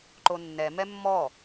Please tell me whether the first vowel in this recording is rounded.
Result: yes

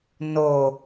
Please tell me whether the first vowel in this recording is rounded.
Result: yes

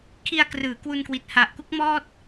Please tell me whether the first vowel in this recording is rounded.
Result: no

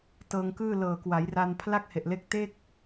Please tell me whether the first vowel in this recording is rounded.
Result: no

